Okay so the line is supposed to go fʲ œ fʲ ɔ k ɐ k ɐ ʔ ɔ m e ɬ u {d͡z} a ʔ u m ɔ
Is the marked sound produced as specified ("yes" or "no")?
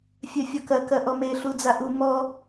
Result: yes